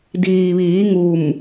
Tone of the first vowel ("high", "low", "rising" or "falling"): low